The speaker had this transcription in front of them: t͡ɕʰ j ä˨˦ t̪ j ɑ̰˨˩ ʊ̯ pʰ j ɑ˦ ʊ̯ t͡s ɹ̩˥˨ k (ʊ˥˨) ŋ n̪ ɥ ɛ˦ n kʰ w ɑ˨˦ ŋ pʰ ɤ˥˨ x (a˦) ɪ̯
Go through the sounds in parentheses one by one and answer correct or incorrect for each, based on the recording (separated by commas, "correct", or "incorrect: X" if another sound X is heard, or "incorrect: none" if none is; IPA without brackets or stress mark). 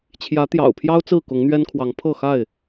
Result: incorrect: ʊ˨˦, incorrect: a˥˨